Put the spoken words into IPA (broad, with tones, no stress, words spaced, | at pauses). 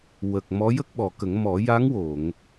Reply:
wə˨˩k̚ mɔ˧˥ jə˦˥k̚ɓɔ˨˩kə˨˩˦ŋ mɔ˨˩˦ja˧˥ŋwo˨˩˨ŋ